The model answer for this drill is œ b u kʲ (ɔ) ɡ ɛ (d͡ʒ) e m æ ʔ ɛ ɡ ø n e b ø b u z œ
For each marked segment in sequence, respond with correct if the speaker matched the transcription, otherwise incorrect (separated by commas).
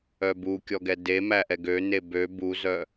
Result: correct, incorrect